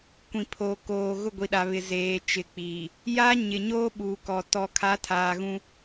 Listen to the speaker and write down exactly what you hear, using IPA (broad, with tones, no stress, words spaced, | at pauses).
kʷĩ˨pʰo˨ koː˨ ɣʊ˦˨ɡʷi˨ɗa˨βɪ˨ zeː˨t͡ʃɪ˨k͡piː˨ | ja˦ ɲɪ˨ɲoː˦ ɓu˨kɔ˨ tɔ˨kʰa˨˦tʰaː˨ ɣũ˦